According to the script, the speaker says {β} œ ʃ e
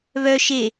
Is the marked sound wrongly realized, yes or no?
no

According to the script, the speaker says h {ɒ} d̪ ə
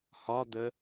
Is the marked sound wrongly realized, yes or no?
no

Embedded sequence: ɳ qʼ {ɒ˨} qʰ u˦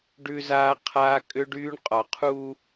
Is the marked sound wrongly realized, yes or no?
no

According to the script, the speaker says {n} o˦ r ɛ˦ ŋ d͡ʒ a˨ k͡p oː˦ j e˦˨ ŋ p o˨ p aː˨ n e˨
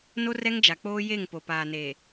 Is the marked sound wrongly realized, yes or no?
no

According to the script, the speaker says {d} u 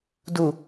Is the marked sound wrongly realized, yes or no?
no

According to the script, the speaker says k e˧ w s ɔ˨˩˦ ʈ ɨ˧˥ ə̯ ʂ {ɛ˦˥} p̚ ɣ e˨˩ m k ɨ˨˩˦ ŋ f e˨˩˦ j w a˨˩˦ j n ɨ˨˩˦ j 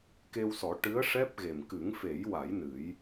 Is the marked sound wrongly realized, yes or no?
no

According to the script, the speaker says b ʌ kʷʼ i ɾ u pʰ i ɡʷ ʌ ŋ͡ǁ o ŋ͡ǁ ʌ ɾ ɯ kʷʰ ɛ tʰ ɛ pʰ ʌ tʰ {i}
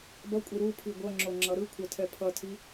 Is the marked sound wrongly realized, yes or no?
no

